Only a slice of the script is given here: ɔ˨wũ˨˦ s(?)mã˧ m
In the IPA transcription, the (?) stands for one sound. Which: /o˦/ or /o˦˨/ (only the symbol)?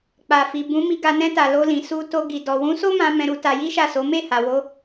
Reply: o˦